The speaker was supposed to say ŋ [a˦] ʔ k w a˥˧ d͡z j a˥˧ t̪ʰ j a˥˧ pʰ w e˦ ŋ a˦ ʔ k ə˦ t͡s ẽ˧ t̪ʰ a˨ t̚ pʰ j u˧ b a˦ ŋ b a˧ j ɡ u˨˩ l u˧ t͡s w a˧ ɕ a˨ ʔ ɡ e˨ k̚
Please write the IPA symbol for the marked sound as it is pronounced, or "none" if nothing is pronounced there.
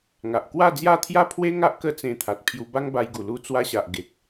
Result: a˨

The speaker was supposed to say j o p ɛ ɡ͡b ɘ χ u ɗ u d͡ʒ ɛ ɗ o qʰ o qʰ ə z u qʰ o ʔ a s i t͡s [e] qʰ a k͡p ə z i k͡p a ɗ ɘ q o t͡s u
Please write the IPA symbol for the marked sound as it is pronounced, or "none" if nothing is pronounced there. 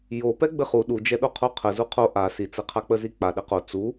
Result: ɘ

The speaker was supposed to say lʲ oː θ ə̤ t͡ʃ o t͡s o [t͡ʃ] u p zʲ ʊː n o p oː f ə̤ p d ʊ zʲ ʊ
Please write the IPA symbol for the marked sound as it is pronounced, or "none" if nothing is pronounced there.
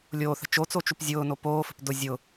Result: t͡ʃ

